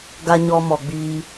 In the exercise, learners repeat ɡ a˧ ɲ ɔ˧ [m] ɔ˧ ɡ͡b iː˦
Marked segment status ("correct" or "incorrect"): correct